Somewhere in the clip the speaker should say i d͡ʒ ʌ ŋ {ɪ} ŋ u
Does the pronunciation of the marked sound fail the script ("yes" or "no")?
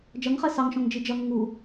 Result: no